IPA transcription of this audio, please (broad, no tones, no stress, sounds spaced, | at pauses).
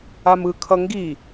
a m ɯ kʰ ʌ ŋ ɡ i